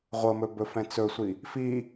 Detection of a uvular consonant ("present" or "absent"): present